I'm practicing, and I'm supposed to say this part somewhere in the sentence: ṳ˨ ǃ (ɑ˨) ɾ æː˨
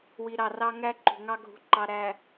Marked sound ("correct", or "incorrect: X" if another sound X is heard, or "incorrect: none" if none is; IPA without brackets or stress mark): correct